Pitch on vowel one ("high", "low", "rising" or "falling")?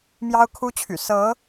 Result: high